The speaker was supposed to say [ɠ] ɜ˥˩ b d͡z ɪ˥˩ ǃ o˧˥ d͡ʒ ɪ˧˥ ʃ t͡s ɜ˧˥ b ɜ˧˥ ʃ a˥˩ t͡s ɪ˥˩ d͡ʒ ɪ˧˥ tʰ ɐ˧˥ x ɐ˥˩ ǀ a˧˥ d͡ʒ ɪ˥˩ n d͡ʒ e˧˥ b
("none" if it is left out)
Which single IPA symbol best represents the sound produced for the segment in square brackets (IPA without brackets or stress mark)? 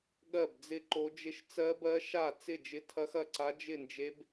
ɠ